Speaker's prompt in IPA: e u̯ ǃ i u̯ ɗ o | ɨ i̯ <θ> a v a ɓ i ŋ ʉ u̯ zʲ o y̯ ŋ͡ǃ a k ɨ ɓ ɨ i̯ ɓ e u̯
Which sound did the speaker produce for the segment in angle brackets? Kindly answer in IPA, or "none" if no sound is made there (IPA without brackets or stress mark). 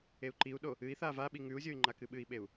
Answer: θ